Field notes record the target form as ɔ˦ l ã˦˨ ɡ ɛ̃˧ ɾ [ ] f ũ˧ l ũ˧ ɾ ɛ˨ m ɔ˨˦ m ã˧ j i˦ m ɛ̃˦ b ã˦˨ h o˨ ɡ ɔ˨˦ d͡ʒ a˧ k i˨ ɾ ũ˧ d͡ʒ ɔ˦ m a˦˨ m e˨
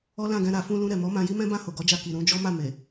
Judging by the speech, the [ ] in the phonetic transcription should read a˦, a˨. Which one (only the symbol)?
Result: a˨